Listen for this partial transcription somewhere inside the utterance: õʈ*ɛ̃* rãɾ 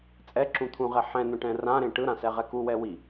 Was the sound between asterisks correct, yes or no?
yes